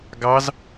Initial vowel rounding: unrounded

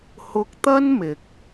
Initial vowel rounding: rounded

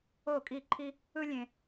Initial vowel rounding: rounded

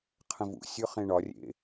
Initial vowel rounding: unrounded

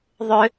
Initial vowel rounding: rounded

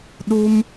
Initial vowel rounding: rounded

